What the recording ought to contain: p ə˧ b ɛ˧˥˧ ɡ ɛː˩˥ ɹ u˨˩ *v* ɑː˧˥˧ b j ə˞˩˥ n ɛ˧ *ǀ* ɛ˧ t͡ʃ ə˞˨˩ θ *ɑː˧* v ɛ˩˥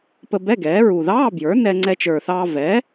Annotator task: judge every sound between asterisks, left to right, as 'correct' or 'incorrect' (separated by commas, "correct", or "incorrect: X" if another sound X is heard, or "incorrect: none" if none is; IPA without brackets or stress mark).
incorrect: ð, incorrect: ŋ͡ǀ, correct